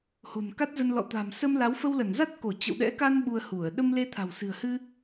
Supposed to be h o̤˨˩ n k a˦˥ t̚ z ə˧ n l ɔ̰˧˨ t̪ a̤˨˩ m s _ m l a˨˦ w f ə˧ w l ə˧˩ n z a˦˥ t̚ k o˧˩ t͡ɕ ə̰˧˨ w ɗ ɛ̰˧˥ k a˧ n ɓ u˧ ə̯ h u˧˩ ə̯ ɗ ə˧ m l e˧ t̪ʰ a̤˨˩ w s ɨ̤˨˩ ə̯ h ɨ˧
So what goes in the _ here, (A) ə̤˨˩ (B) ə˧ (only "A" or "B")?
B